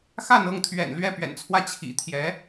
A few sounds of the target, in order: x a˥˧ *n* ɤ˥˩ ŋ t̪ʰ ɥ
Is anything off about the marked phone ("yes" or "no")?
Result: no